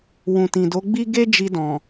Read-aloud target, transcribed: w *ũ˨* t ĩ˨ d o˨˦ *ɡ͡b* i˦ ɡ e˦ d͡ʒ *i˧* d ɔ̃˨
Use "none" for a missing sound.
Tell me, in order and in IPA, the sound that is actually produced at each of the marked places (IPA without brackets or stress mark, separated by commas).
ũ˨, ɡ͡b, i˧